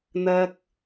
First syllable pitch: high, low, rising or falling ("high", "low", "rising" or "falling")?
high